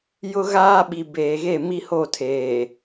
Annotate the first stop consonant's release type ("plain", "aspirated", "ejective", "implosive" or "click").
implosive